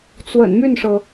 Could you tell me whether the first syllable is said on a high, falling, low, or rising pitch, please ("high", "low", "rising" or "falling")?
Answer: low